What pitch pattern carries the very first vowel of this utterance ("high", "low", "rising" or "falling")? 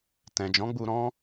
low